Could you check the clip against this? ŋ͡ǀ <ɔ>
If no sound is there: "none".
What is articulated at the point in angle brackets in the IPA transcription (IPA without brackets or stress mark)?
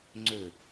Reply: ɵ